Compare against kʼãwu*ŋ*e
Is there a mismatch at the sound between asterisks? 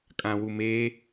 yes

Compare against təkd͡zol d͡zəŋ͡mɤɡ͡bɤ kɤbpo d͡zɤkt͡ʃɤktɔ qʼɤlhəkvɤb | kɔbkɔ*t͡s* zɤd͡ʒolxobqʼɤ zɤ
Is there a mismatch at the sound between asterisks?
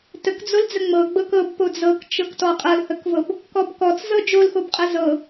no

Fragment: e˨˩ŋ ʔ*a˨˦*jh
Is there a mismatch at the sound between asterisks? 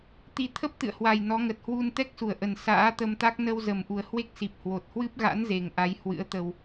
no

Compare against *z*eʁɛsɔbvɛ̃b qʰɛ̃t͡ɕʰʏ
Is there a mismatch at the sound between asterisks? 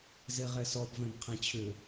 no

